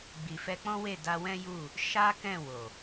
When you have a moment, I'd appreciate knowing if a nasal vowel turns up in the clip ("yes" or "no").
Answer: yes